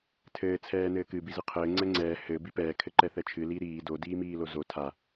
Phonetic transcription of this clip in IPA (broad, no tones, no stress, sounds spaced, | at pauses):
tʰ ɘː t͡sʰ ɛː n ɘː k ɨ b i z ɨ qʰ ɘː ŋ͡ǀ ɛ ŋ͡ǀ ɛː h ɘ b i p ɛː kʰ ɘ ǃ ɛ θ ɛ t͡ʃʰ ɨ l i ɾ iː d o d iː m iː l o z o tʰ a